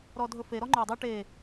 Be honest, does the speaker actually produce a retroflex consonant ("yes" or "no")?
yes